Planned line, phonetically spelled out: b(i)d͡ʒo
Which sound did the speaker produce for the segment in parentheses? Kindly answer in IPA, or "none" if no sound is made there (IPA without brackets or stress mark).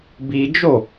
i